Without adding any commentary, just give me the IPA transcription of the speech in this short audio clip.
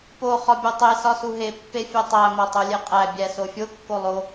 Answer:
po χɒbʲotˤe sɒsuɦe pːefʲetˤæ motˤolʲeqʼæ bʲæsofʲo kːolˠo

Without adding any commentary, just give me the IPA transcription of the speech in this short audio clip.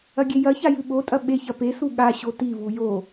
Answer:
ɐɡʲejɐça jʉɓotʼɐ ɓeçɐ pesu ɠaɕo tivu jo

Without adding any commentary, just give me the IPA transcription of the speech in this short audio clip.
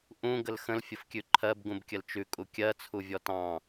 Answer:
ʔũ ɡəlxə̃l fʲəfkʲʉǃʰɜb ɡũbkʲəlt͡ʃʉ kʼukʲɜ t͡sʰuvʲɔtɑ̃

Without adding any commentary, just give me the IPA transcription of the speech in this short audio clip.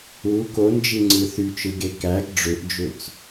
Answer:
u kond͡ʒiŋ͡ǀɯ θyt͡ʃɯɡe kæɡ ɖ͡ʐøʔd͡ʒøt͡s

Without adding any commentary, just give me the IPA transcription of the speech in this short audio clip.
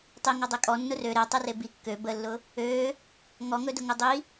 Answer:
tˤiŋɔdˤe kʼɔnːʊ rø ɾetˤʊre bi kːø bəlːʊ | ø | ŋɔŋɵdʊ ŋudˤi

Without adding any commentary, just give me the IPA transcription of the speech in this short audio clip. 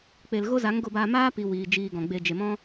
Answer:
k͡pe˨l ɣo˦za˨˦ŋɡo˧baː˧ maː˦pi˨ wiː˨ d͡ʒiː˧ɡɔ̃˨ɡ͡be˧ d͡ʒe˨mɔ̃˦

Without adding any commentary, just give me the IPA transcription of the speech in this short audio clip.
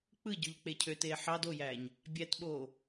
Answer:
k͡pɯɟøʎk͡pe cʰøteː ħɑd ojæːɲ | bʲætɓoː

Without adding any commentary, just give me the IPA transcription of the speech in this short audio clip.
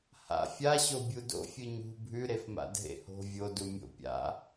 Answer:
ha̰ fʲaɕo bʲudo̰ fʲɨɲṳ bʱʉɾefma̰ dʱḛho̤ vʲodumʲo̰ pʲa̰

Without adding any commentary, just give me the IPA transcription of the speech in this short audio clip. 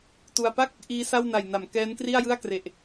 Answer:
tu˧a̯ pa˥˩k̚ | ʔiː˦˥sa˥˩w na˨˩jna˩˦m kɛː˦˥n kri˥˩a̯jɯ˥˩a̯ kre˨˩ʔ

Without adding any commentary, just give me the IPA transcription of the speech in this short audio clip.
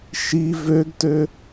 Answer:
ʃi vøɡtø

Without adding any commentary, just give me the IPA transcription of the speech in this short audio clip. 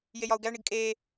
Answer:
jejɒu̯ɡæɳiɡ kʼeː

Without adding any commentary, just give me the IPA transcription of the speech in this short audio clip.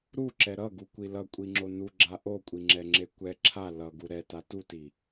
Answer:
ɾuǁɛ ɾʌɡukʷi lʌkʷʼiŋ͡ǁo nuɡ͡ǁa ʔokʷʼiŋ͡ǁɛŋ͡ǁe kʷɛ ǁʰa lʌɡu ɾɛta tuti

